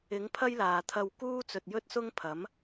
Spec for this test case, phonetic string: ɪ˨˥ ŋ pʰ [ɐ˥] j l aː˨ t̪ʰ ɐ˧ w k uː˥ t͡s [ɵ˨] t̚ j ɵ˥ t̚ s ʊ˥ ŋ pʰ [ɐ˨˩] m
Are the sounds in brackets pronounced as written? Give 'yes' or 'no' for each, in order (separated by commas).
yes, yes, no